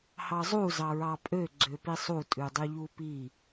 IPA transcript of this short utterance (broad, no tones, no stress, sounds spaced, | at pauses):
h ɑ zˤ u z ɑ ɹ ɑ pʼ ø ɡ͡ǀ ø p i sˤ u tʼ ʉ dˤ y ʎ u p i